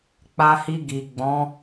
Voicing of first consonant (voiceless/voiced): voiceless